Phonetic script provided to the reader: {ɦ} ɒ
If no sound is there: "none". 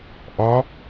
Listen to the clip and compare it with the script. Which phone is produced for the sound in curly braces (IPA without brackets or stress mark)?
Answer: ʔ